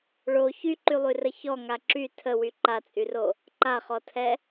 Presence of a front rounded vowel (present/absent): present